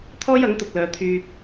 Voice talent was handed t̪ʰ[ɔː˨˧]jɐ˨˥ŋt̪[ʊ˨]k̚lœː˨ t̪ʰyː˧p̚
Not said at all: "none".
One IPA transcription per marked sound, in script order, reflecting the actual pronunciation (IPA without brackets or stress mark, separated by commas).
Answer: ɔː˥, ʊ˨